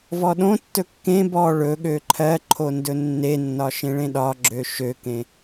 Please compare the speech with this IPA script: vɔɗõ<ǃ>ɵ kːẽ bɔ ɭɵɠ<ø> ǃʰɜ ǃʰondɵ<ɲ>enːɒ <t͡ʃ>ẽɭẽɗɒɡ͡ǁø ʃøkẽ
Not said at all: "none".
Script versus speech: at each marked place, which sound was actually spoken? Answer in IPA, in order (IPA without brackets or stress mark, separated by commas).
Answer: tː, ø, nː, ʃ